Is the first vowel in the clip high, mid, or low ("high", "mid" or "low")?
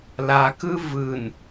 low